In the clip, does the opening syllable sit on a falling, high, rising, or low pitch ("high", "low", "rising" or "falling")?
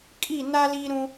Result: falling